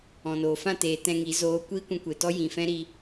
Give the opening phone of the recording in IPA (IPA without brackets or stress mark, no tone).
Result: ɔ̃